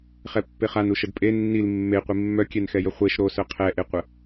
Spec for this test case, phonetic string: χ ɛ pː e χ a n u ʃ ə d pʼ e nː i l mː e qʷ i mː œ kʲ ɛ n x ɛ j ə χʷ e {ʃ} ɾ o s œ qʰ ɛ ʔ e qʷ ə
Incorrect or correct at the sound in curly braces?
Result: correct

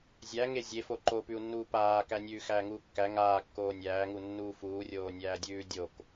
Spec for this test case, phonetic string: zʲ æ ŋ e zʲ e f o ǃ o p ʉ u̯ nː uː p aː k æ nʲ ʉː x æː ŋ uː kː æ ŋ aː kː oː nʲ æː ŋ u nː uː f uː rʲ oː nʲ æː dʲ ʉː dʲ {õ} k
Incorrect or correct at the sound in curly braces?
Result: incorrect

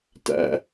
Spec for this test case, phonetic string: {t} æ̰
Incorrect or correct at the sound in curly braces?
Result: correct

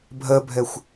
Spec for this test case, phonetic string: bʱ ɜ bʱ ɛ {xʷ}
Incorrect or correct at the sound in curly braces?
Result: correct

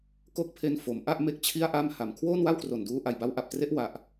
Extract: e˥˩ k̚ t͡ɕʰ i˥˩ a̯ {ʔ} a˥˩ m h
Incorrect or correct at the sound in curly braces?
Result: correct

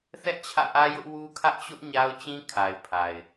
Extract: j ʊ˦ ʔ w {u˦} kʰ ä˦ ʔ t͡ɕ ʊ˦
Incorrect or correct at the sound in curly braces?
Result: correct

